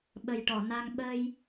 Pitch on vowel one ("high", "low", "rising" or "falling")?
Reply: low